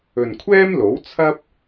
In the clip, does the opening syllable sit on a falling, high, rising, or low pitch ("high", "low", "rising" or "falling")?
low